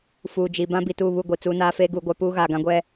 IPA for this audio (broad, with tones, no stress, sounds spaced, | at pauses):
f uː˨ d͡ʒ i˨ b ã˦ b i˨ t uː˦˨ β u˦˨ ɡʷ i˨ t͡s uː˦ n aː˦ f eː˦ ɡ uː˨ ɡʷ a˦ p uː˦ ɣ aː˨ ɡ ã˦ ɡʷ ɛ˦